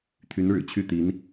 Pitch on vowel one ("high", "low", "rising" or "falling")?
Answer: rising